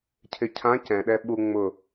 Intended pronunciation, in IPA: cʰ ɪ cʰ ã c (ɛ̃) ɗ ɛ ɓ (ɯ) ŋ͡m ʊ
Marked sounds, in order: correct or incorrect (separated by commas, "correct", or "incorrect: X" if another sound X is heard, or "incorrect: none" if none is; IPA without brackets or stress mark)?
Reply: correct, incorrect: u